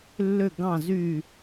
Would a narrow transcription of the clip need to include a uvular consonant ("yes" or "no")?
no